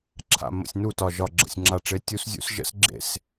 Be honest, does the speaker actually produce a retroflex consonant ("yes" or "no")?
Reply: yes